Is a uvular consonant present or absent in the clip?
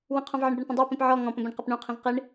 present